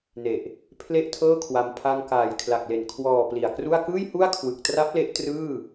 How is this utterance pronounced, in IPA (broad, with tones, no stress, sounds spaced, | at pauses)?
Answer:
n e˨˩ ʔ | pʰ l e˥˩ ʔ tʰ ɤː˥˩ kʰ w a˧ m pʰ a˧ ŋ k aː˨˩ j kʰ l a˨˩ k̚ l e˨˩ n kʰ w ɔː˨˩ p l i˨˩ a̯ k r u˥˩ a̯ k ɯː˥˩ j h u˥˩ a̯ kʰ w ɯ˨˩ k̚ t r a˦˥ p̚ l e˦˥ ʔ t r ɯː˥˩